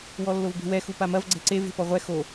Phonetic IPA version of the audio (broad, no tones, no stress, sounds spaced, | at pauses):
w ɔ lː o v b e̤ w ɛ x u p a m ɐ v ɡ͡ǀ ɛ̤ ǀ e v e̤ p ɔ ʁʷ ɛ x o